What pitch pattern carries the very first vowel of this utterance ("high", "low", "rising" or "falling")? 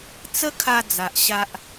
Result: high